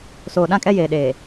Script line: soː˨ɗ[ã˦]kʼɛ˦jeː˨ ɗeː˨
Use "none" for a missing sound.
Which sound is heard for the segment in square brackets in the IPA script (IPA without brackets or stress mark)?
ã˦